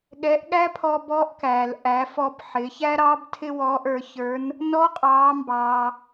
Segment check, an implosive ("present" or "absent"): present